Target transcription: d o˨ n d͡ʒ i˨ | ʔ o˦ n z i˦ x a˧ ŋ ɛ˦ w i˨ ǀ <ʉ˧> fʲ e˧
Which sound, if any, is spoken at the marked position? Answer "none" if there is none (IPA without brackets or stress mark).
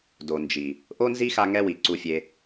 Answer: u˧